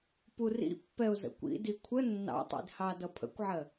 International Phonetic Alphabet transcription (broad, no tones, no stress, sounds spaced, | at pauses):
p u r ḭ pː ɛ ʊ̯ z ə̰ kʷ ḭ d i kʷʰ ə nː ɑ̰ tˤ ḭ d h ɑ d ʌ pʰ ə̰ kʷ ʕ ɜ